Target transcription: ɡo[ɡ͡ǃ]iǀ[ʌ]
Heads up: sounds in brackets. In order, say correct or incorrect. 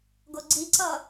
incorrect, correct

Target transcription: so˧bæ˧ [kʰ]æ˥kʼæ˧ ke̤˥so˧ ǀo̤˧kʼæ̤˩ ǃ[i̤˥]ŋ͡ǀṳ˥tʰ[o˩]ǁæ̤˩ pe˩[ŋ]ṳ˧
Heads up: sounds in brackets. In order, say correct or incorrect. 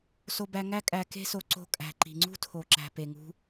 incorrect, incorrect, correct, correct

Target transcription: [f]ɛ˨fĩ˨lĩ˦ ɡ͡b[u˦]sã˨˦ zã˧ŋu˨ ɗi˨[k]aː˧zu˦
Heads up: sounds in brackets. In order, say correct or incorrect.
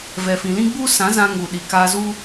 incorrect, correct, correct

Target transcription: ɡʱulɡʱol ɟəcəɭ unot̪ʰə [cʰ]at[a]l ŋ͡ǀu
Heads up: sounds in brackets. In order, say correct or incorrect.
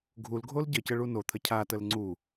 correct, incorrect

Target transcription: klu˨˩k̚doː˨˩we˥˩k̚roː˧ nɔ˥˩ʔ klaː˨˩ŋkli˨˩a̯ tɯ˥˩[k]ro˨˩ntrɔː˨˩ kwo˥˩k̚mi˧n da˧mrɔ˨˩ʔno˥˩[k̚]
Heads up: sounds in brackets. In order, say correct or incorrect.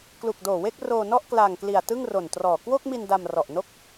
incorrect, correct

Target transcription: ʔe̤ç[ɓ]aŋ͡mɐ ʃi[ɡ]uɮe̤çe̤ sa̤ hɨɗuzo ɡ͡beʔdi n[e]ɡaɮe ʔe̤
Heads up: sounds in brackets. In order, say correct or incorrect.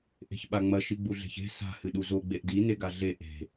correct, incorrect, correct

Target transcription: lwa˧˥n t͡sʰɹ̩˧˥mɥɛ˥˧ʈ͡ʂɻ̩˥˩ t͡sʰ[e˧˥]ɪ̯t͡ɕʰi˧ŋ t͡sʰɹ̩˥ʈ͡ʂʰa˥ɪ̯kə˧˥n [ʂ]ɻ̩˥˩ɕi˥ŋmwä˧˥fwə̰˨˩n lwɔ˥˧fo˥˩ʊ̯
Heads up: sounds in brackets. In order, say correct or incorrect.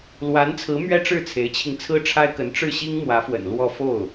correct, incorrect

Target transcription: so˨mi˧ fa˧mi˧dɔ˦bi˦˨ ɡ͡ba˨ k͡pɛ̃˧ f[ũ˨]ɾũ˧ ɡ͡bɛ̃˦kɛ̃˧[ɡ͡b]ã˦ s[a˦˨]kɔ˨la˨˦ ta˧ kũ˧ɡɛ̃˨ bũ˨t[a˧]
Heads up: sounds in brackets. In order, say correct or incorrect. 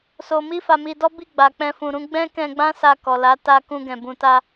correct, correct, incorrect, correct

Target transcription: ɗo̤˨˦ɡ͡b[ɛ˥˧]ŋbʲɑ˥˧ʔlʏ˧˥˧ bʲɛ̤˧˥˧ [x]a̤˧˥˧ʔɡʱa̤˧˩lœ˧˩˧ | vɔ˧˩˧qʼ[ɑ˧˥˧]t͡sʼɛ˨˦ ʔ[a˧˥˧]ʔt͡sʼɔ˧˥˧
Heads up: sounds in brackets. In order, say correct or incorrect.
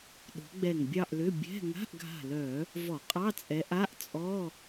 incorrect, incorrect, correct, correct

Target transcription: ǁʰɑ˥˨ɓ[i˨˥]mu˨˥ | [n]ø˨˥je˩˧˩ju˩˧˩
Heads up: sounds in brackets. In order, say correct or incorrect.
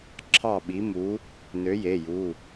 correct, correct

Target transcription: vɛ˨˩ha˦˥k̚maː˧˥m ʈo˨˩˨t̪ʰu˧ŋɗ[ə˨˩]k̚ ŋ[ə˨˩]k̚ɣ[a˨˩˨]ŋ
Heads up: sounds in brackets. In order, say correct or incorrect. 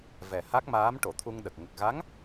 correct, correct, incorrect

